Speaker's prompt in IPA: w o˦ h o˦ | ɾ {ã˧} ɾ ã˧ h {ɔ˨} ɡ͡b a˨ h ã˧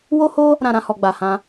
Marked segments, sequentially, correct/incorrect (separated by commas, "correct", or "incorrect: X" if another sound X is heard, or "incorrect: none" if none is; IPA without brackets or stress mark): correct, correct